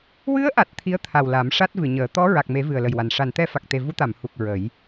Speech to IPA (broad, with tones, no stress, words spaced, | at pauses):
wɨ˧˥ə̯ʔa˨˩t̚ t̪ʰi˧˥ə̯ t̪ʰa˨˩w la˨˩˦mʂa˦˥t̚ vɨ˨˩˨ɲəː˨˩˦ t̪ɔ˧˥ ɹa˨˩k̚me˨˩˦ vɨ˨˩ə̯lə˨˩j wa˨˩n ʂa˨˩˨nt̪ɛ˧fa˨˩k̚t̪e˨˩ vu˧˥t̪a˨˩˨m hu˨˩k̚ ɹə˨˩˦j